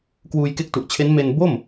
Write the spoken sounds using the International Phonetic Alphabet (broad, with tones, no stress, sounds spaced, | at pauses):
k w uː˧ j k e˦˥ k̚ t u˨˩ ʔ t͡ɕʰ e˦˥ n m e˧ n b o˥˩ m